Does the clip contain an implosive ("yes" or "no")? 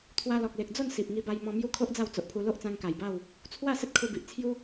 no